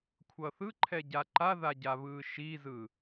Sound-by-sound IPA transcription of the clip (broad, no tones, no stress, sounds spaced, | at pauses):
kʷʰ ʌ θ ɯ ǃʰ ɛ ɟ a ǃ a ð a ɟ a β ɯː ʃ i z ɯ